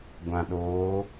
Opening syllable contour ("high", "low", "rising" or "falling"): low